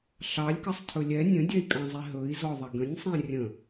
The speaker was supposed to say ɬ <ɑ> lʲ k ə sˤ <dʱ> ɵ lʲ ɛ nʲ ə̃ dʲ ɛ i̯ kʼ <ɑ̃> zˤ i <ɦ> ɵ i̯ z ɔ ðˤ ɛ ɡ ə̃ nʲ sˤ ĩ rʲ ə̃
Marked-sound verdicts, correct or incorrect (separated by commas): correct, incorrect, correct, correct